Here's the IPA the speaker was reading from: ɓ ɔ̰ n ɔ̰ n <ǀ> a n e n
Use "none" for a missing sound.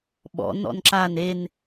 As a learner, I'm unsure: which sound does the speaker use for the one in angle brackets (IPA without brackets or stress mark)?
ǁ